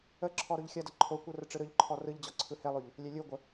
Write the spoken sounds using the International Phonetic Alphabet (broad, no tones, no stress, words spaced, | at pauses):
ə ǁʰɔɾoʎxʲɐdə ǃʰokʷɯ rəʈ͡ʂɯɾɯʎǃʰɔ rɯʎd͡ʑɔ ǀʰɯhelˠoʎ | lʲelʲɯɡʷə